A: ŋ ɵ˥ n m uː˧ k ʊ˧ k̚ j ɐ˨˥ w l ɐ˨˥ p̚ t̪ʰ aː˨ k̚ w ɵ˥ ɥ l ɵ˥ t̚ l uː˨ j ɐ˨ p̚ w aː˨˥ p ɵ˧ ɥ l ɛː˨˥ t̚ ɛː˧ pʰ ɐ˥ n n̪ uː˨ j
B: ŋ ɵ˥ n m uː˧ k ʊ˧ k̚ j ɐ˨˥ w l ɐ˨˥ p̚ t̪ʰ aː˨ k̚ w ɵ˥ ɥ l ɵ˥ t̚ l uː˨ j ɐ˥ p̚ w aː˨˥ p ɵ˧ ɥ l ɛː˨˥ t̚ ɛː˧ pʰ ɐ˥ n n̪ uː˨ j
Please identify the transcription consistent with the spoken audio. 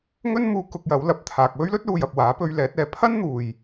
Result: A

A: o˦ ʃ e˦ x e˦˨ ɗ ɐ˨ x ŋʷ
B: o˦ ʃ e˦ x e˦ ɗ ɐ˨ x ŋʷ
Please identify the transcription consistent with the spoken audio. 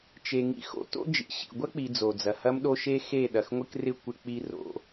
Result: A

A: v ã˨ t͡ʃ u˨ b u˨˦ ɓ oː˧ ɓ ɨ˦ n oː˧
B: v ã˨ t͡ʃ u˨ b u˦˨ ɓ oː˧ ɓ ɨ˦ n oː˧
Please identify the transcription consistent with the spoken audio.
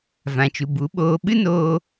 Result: A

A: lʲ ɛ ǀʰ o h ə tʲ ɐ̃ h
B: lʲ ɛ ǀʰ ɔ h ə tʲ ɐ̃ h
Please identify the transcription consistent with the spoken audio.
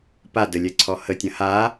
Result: B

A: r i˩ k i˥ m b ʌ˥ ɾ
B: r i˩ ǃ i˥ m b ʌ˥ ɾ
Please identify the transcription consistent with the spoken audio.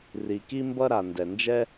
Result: A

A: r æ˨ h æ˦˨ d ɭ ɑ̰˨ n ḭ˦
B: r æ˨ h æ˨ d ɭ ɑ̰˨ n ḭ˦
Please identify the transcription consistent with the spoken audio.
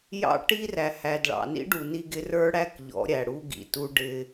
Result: B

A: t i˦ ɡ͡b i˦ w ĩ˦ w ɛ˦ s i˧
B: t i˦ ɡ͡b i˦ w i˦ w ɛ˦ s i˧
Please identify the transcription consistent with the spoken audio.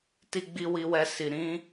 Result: B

